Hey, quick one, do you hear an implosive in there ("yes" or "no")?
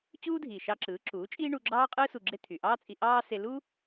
no